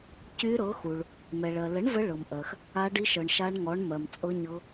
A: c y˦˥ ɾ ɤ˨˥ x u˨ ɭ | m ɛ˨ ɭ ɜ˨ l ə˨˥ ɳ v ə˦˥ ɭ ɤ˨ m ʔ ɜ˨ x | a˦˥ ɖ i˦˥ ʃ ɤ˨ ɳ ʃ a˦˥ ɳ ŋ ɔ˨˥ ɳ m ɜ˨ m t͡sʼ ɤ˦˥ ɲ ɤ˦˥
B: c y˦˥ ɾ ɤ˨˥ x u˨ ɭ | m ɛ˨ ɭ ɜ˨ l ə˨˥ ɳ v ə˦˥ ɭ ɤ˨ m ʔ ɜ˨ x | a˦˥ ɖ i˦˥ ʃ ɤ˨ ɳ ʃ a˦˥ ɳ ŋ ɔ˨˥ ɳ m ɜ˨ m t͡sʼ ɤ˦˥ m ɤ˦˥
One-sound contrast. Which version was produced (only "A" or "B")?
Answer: A